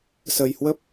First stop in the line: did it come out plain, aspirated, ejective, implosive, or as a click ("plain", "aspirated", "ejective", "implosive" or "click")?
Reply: plain